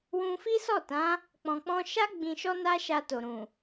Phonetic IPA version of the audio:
w ũ˧ f i˦ s ɔ˦˨ t ã˨˦ | k͡p ɔ̃˨ k͡p ɔ̃˧ ʃ a˦ ɡ͡b ĩ˧ ʃ ɔ˦ n a˦ ʃ a˧ t o˨ ɾ ũ˨

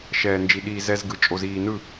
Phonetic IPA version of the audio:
ʃ ɛː˨ n d͡ʒ i˨ ɗ iː˨ z ɛ˧ z ɡ ɯ˨ t͡ʃʼ o˨ z iː˨ n ɯ˦˨

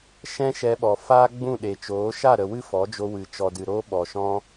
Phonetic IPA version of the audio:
ʃ ɛ̃˦ ʃ ɛ˧ ɓ ɔ˨ f aː˦ ɡ͡b ũ˦˨ ɗ e˨ t͡ʃ oː˨˦ ʃ a˦˨ ɾ ə˨ w ɨ˦ f ɔ˨˦ d͡ʒ o˧ w ɨ˨ t͡ʃ ɔ˨ d ɨ˨ ɾ oː˧ ɓ ɔ˨ ʃ ɔ̃˧

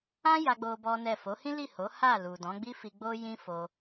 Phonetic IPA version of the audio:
ã˦ j a˦ ɡ͡b o˦ b ɔ˦ n ɛ˦˨ f o˨˦ h ĩ˦ l i˦˨ h o˨˦ h a˦˨ l u˨ d ɔ̃˨˦ ɡ͡b i˦ f i˧ ɡ͡b o˦ j ĩ˦ f o˧

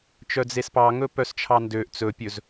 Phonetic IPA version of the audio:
t͡ʃ œ d͡z e s p ɑ ŋ ɵ p œ s t͡ʃʰ ɑ n d ø ʔ t͡s ɵ pʲ ɵ z

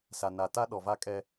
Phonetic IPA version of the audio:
s a˨ n a˨ t a˦ ɗ ɔ˨ v a˦ kʼ ɛ˦

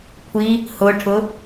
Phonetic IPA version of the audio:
kʷʰ i | h ʊ ʈʰ ʊ

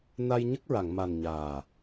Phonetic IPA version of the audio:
n a˧ j ɲ ə˦˥ k̚ ɹ a˨˩˨ ŋ m a˨˩ n ɲ aː˨˩

